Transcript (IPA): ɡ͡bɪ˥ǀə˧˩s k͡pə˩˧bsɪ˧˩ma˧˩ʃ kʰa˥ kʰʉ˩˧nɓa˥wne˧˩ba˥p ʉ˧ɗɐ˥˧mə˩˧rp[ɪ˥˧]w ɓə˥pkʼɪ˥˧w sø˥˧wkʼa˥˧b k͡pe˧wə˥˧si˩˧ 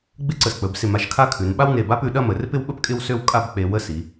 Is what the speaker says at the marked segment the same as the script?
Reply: yes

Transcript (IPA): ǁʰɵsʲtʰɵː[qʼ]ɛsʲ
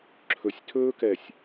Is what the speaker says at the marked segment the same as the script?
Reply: no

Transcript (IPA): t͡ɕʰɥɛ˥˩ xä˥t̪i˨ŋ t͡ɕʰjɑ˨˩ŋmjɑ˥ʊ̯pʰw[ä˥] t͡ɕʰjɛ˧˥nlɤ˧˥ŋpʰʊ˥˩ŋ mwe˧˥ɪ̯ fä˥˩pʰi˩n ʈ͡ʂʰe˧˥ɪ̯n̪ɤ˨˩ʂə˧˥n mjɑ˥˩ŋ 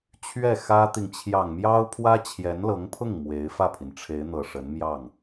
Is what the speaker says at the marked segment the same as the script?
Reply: yes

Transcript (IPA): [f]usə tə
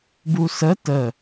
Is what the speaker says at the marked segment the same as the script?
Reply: no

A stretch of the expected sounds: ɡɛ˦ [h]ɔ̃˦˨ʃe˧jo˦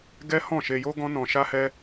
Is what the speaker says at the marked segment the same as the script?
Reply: yes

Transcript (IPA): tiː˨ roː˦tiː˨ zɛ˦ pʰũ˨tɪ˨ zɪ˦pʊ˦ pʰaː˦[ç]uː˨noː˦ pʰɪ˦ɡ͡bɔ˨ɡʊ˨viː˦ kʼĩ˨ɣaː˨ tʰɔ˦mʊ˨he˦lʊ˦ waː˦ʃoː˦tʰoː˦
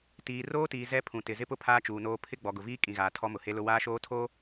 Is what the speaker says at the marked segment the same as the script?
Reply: no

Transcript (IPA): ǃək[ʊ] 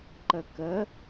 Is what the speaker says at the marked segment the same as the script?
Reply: no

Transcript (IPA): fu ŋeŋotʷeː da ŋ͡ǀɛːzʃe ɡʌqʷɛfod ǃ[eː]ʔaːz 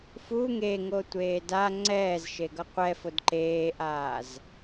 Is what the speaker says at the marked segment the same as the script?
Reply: yes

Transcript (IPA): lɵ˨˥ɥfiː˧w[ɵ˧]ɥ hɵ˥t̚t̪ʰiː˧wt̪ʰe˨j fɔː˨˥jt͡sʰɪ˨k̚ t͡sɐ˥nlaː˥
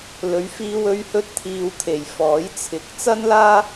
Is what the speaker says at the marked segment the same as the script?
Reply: yes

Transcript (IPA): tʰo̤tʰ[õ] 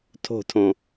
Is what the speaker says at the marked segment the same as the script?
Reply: yes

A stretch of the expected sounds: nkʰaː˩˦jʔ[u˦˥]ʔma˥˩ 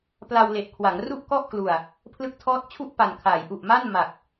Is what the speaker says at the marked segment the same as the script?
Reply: no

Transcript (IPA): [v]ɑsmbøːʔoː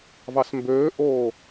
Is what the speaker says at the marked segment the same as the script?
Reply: yes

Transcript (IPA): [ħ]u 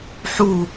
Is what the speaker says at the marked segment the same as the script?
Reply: yes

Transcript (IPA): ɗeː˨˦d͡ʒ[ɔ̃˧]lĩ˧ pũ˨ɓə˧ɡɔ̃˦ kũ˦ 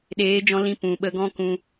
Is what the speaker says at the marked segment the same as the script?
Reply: yes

